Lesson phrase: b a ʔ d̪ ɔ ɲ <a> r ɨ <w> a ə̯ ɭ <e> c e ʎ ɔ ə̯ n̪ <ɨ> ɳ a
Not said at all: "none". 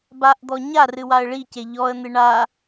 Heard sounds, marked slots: a, w, i, ɨ

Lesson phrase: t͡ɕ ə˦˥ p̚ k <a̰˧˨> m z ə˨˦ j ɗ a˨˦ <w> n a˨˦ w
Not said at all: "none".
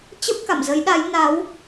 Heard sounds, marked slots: a̰˧˨, j

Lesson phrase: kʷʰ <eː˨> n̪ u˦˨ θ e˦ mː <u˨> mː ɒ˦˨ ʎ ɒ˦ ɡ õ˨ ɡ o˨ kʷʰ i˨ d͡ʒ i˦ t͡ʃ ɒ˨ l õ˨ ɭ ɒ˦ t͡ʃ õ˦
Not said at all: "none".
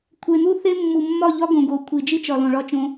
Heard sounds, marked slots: e˨, u˨

